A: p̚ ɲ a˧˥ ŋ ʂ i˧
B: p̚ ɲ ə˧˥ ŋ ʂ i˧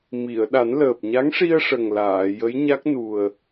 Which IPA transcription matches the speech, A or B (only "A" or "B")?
A